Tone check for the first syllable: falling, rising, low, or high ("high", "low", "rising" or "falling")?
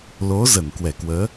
rising